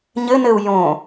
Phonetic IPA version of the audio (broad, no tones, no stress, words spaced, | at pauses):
ɲɘnɘu̯ jõ